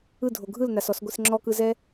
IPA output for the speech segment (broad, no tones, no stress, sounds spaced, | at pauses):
ɯ dʱ o ɡʱ ɯ l n a s ɔ s ɡʷ i s ŋ͡ǁ ɔ k ɯ z ɛ